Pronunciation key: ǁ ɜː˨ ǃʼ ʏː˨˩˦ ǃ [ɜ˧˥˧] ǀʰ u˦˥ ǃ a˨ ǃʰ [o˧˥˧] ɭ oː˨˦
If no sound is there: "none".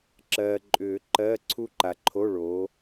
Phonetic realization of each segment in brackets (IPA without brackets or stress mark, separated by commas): ɜ˧˥˧, o˧˥˧